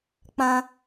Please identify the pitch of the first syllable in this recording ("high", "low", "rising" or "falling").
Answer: high